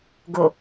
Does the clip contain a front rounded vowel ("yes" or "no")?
no